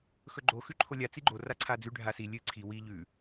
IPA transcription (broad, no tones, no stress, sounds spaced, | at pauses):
x ɵ ɡ͡ǃ o x ʉ ǃʰ o lʲ a t͡s i ɡ͡ǃ o r a ǀʰ a d͡z ʉ ɖʱ a s i lʲ ɨ ǀʰ i w i ʎ ʉ